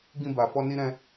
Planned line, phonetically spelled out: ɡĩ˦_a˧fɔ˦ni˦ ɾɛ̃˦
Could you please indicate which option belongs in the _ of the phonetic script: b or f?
b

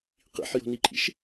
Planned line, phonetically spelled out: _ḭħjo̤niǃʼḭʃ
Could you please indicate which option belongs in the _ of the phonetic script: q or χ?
q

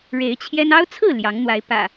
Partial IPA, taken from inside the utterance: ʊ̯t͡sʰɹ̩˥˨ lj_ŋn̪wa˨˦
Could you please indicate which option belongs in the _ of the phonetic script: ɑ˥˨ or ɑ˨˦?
ɑ˨˦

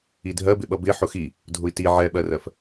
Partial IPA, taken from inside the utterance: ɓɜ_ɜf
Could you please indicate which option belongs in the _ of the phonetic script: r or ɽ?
r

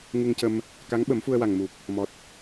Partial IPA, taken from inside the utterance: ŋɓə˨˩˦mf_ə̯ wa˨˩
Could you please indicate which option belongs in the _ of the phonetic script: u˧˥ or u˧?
u˧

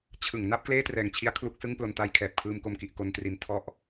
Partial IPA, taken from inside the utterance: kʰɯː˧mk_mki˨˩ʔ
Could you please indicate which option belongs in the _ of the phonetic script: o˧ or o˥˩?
o˧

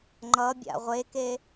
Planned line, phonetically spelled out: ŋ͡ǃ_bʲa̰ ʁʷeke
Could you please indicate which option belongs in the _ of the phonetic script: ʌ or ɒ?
ʌ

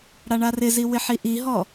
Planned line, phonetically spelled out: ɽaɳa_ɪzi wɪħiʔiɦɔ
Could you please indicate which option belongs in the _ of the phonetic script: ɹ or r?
r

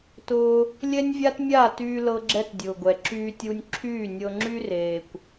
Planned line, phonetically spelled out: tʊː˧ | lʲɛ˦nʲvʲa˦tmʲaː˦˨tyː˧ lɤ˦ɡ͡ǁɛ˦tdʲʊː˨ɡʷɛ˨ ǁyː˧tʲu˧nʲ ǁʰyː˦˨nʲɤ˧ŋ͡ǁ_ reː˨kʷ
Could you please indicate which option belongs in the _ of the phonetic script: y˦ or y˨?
y˦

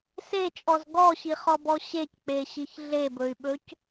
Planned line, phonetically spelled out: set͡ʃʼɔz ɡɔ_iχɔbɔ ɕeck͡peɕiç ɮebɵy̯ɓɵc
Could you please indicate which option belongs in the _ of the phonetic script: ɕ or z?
ɕ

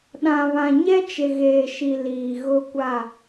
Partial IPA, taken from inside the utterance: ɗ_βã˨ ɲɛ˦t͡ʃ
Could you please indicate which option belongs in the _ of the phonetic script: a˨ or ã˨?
ã˨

